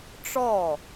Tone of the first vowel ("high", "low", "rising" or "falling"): falling